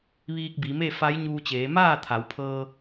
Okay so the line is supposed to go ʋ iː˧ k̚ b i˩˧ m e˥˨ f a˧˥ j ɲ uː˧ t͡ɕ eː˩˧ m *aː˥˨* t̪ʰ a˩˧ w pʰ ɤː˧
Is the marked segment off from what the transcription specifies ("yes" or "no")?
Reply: no